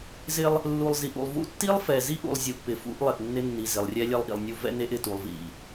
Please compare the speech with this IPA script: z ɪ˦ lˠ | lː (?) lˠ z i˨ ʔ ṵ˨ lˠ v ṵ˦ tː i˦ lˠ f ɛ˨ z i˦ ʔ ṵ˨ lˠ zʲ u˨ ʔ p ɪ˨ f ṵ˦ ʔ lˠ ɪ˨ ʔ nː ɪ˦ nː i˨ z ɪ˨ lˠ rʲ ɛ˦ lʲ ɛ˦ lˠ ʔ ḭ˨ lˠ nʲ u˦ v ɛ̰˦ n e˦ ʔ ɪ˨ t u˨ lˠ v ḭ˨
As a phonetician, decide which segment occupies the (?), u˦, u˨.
u˨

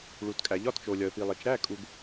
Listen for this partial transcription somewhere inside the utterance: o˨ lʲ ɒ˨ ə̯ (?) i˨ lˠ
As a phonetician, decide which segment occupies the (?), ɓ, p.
p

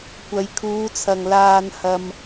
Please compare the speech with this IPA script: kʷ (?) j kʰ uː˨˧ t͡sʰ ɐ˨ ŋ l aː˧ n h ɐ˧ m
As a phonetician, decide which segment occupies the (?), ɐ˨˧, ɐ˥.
ɐ˨˧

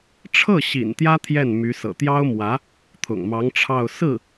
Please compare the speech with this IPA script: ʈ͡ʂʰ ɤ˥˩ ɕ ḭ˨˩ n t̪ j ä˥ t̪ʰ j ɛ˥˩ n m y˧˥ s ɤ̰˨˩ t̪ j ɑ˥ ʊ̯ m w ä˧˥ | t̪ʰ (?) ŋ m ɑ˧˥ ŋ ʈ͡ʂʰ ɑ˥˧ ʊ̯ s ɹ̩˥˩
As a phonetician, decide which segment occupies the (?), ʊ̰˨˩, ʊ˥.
ʊ̰˨˩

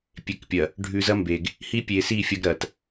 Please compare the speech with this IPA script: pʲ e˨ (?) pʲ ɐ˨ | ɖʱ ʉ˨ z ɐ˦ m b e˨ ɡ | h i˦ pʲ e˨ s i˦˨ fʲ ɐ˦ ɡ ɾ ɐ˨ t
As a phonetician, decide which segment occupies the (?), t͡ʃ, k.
k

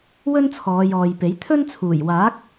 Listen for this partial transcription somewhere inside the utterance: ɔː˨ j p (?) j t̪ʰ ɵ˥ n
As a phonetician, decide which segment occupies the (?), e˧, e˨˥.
e˨˥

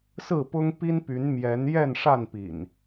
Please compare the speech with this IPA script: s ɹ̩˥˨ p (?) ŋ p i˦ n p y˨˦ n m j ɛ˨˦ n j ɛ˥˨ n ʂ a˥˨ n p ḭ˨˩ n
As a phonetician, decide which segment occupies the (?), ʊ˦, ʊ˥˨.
ʊ˦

